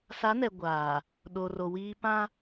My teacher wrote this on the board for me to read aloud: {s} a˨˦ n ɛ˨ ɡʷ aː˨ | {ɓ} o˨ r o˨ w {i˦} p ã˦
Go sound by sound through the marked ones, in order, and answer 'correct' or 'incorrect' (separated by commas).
correct, incorrect, incorrect